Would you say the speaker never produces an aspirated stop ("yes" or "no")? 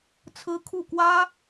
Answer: no